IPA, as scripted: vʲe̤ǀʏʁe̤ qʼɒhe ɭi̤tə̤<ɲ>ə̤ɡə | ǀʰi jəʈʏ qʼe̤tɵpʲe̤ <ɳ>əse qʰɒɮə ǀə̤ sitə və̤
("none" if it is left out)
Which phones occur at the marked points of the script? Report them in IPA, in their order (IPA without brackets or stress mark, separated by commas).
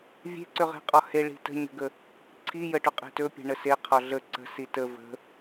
ɲ, ɳ